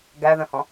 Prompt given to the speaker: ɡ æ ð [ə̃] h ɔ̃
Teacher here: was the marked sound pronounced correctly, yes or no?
yes